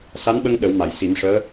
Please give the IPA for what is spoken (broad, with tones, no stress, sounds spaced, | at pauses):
s a˧˥ n ɓ ə˧ ŋ ɗ ə˨˩˦ w m a˨˩˨ j s i˨˩˦ m ʂ əː˧˥